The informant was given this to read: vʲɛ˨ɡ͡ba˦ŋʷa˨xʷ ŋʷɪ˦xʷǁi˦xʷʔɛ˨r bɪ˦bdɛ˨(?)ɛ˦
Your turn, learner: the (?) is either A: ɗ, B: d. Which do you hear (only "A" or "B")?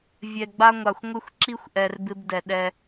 A